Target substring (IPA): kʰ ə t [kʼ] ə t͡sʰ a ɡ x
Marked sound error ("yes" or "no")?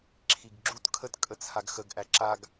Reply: no